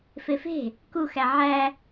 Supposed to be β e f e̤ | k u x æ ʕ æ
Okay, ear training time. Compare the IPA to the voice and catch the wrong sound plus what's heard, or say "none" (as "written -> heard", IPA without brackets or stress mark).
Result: β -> f